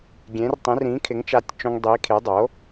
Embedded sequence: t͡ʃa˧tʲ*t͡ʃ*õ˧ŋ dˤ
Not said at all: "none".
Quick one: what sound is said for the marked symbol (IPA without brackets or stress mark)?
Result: t͡ʃ